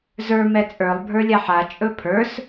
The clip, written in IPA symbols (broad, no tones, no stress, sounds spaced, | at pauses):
z ə˞ m ɛ t͡sʼ ə˞ lˠ bʱ ə˞ lʲ a ħ a t͡ʃʼ ɵ pʰ ə˞ s